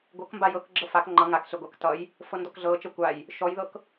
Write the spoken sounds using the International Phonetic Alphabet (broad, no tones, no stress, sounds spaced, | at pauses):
ɡʷ ɤ k m b a j ɤ k ɡ͡ǁ ɤ f a k ŋ͡ǃ ʌ ŋ a k ɬ ɘ ɡʷ a k t ʌ j | f ɤ n d ɔ k ɮ ɤ t͡ʃ ɤ kʷ a j | ʃ ɔ j ð ɤ k